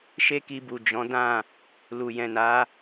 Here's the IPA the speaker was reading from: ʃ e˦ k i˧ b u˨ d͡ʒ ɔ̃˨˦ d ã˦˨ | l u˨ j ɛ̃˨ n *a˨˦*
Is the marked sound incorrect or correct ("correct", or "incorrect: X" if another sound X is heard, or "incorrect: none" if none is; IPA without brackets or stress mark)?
correct